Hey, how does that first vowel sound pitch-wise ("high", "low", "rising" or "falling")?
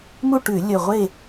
falling